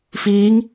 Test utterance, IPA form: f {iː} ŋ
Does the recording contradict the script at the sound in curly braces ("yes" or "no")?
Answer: no